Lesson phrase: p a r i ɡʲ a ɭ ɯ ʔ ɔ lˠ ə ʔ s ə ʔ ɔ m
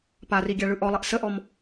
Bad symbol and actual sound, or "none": none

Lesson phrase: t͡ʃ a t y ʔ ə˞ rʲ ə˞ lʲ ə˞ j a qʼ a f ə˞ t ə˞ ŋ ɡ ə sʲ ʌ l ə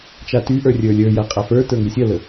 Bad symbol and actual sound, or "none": none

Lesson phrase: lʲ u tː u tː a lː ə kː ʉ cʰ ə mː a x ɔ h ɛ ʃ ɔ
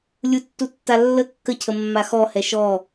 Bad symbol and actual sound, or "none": ʉ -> ə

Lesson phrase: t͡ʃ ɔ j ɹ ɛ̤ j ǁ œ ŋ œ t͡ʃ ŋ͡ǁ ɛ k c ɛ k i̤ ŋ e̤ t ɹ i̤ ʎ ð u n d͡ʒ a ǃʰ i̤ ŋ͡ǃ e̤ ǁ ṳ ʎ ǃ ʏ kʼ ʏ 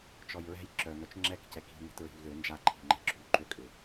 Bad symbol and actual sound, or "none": u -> ʏ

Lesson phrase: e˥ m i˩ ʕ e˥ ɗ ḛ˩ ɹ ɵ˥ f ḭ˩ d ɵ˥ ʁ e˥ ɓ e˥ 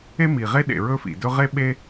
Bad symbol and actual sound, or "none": ʕ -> ʁ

